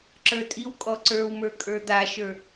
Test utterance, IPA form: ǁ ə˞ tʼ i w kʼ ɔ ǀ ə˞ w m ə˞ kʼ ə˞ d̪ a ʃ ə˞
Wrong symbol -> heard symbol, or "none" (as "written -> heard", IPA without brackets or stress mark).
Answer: none